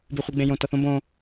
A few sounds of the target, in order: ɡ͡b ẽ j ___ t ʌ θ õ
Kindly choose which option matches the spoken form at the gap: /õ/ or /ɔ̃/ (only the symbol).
õ